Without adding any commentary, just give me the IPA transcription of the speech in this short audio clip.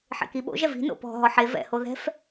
ħ ḛ k i ɓ o̰ ʒ ɛ v i̤ n o̰ p ɔ̤ ɦ ɔ ħ e v ɛ̰ h o ð ɛ̤ f

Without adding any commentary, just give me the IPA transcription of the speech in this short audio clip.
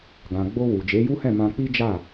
ɡ ã˨ ɡ͡b o˧ w u˨ d͡ʒ e˨˦ j u˦ h ɛ̃˦˨ m ã˧ k͡p i˦ d͡ʒ a˦˨

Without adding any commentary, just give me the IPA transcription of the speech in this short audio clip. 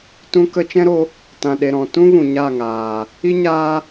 t ũ˧ k ə˧ t͡ʃ ɛ̃˦ ɾ o˧ | t ã˨ ɗ e˨ ɾ ɔ̃˨ t ũ˦ v ũ˨ ɲ a˦˨ ŋ aː˨ | i˦ ɲ aː˦

